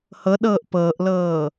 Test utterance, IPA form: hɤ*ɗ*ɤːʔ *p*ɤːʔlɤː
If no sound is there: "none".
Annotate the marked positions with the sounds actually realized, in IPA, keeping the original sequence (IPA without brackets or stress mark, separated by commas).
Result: ɗ, p